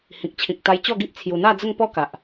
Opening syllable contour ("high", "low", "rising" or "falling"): low